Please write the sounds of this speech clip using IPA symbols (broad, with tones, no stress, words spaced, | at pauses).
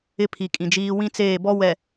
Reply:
ɪ˦pʰi˨kʼĩ˨d͡ʒiː˦ wĩ˦t͡seː˦˨bɔ˦wɛ˨